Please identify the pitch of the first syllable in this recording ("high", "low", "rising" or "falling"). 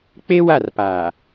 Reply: high